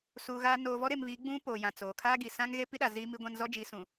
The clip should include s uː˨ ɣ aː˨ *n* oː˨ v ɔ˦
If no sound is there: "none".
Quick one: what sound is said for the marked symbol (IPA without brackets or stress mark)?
n